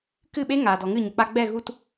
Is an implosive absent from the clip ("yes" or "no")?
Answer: no